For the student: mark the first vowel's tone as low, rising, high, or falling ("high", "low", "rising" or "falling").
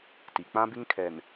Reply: low